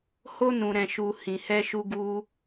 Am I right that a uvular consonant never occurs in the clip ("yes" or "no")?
yes